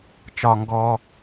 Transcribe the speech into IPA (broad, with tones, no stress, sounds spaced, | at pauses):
t͡ʃ ɒ˧ ŋ ɡ ɔː˧